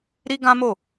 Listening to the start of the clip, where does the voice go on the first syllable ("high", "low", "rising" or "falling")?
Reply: high